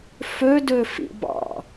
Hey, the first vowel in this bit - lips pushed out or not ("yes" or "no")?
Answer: yes